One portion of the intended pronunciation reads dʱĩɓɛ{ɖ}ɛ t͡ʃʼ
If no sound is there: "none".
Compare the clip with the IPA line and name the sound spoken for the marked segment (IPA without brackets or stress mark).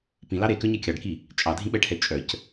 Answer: ʈʰ